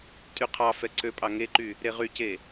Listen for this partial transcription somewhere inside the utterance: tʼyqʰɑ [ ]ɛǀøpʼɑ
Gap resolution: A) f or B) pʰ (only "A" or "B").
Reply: A